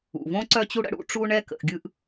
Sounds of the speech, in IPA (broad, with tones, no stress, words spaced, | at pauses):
ṵ˩võ˥ ǀœ˥t͡ɕu˥ ɽə̰˥ɽṵ˥ʈ͡ʂu˥ ɳɛ˥ kə̰˩ʔɡʲɯ˥ʔ